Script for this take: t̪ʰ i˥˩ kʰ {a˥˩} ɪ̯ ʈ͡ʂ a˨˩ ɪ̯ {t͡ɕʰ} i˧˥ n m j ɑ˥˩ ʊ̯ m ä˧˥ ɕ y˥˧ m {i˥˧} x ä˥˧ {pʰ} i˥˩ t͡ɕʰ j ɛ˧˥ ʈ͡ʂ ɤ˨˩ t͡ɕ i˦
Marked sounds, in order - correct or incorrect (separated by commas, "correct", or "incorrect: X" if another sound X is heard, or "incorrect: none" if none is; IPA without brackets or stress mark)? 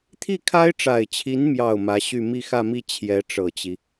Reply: incorrect: a˥, correct, correct, incorrect: m